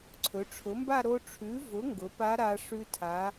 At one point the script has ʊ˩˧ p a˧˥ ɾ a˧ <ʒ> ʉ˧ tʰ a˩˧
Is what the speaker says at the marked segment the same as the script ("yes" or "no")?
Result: no